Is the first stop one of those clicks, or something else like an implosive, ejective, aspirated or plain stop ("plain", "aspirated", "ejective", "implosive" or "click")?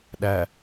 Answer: implosive